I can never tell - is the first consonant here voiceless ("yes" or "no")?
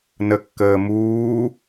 no